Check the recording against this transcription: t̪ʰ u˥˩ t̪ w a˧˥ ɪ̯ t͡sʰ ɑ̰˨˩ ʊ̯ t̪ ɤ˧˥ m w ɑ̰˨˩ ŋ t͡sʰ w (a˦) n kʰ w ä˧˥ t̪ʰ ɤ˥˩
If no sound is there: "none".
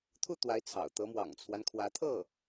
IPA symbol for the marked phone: a˦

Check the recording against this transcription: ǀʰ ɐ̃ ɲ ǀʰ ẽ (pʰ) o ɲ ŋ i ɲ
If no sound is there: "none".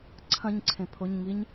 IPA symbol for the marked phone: pʰ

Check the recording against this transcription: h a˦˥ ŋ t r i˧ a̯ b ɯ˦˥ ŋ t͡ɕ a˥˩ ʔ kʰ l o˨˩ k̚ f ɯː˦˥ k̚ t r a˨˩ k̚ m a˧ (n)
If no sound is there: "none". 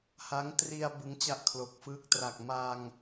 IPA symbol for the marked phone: ŋ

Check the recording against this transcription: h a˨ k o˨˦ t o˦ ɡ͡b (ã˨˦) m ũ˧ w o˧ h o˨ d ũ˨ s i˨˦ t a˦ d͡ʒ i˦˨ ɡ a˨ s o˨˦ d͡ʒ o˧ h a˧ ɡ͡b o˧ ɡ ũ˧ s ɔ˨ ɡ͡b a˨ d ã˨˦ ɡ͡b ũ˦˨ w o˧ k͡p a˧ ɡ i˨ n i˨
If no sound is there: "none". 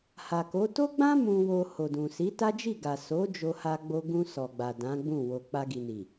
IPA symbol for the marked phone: ã˦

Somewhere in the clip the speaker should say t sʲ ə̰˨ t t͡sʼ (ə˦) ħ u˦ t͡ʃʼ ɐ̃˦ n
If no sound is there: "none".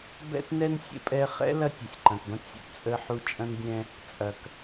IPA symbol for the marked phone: ə˦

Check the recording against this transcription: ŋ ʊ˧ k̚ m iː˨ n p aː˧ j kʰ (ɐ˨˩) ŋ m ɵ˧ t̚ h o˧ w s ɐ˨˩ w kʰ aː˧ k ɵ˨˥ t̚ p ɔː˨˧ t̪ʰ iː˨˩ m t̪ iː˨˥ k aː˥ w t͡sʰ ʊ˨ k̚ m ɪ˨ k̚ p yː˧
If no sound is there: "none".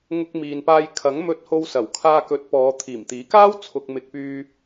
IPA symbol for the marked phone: ɐ˨˥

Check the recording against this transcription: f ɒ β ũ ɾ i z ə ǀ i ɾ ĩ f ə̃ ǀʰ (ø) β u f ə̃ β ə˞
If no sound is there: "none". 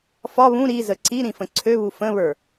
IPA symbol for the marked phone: ø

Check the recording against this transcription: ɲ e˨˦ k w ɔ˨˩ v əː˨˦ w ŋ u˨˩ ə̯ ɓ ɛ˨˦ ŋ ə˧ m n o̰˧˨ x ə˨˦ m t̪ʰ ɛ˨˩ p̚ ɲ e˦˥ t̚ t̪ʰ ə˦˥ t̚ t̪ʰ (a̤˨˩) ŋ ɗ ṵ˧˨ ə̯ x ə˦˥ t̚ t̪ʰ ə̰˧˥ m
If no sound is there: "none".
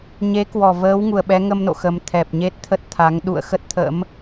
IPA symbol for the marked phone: a˨˦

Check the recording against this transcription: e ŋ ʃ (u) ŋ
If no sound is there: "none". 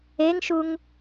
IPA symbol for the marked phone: u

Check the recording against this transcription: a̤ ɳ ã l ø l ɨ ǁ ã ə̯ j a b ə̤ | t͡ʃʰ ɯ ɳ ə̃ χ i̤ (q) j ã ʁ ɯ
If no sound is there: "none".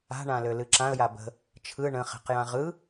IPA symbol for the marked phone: q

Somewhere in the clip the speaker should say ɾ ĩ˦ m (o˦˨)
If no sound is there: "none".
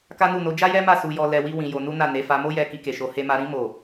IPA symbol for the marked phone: o˦˨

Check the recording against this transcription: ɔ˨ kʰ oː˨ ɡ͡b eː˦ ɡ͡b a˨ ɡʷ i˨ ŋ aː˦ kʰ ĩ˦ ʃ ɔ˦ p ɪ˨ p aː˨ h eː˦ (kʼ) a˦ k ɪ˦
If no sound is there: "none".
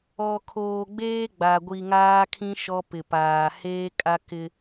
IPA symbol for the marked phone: kʼ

